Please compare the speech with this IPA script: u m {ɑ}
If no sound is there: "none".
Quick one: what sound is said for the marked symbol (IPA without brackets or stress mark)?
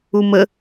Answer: ə